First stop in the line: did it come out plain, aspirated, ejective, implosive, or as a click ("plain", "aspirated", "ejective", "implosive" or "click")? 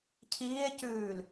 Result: aspirated